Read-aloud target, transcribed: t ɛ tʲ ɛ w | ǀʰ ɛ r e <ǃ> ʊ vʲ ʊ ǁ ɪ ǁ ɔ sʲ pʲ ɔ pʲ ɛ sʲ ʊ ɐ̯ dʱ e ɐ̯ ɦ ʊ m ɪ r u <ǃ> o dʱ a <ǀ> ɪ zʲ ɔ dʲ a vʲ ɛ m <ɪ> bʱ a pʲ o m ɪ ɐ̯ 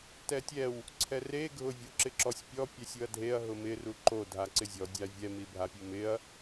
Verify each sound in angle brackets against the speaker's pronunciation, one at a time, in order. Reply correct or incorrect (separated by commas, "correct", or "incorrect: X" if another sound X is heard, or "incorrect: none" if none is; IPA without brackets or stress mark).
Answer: incorrect: ɡʱ, correct, correct, incorrect: i